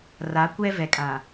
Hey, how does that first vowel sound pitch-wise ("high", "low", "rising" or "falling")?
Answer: rising